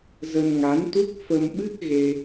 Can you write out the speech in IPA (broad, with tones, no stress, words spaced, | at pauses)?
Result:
zə˧nŋa˨˦nt̪u˦˥k̚ fə˧mɓɨ˦˥k̚ɣe˧